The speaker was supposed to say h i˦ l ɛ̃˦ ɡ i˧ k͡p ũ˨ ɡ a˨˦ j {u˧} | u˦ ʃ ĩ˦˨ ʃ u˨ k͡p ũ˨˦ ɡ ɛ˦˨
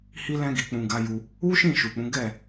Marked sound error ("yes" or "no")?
no